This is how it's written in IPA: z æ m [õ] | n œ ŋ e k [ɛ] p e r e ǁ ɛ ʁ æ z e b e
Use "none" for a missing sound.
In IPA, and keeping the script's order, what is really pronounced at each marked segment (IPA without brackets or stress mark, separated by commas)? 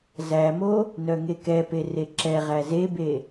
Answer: o, ɛ